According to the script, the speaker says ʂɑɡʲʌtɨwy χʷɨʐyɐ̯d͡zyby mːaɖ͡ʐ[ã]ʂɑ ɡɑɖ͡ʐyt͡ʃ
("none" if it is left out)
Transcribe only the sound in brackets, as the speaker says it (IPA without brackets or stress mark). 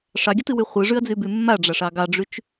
a